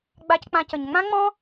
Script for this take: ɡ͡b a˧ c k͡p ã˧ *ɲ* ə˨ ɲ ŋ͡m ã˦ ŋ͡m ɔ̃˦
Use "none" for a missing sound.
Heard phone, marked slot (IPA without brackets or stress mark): c